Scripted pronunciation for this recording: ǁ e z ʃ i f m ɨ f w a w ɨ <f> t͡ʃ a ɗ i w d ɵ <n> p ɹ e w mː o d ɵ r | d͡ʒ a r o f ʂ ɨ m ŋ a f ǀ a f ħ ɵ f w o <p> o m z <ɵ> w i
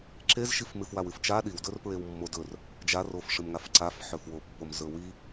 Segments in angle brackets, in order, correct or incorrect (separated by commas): correct, incorrect, incorrect, correct